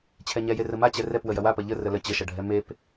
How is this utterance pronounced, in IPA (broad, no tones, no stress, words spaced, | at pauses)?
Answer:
t͡ɕʰɛɲɛje rəmat͡ɕɛ rɛpwə jɐwapɐ ʎə rələ t͡ɕəʃɐɖʱɛ mep